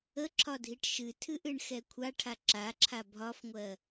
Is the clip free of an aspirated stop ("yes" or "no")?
no